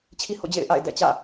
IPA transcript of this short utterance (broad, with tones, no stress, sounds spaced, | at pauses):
t͡ɕʰ i˦ h o̰˦˨ d͡ʑ ḛ˦˨ ɪ̯ ʔ a̰˦˨ ɪ̯ d ɛ̰˦˨ t͡ɕ ä̰˦˨